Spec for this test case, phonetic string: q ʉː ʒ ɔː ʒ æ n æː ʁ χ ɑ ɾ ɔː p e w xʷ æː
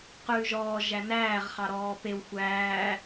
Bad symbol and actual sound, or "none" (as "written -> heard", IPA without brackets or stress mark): none